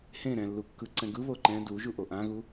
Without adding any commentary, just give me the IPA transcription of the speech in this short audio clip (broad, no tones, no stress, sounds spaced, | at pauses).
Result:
h ẽ ɾ ɛ̃ lː u kː ɯ ǀ ɛ̃ ɡ ɯ β o ǃ ɛ̃ d u ʒ u ʔ o ʔ ã ɣ u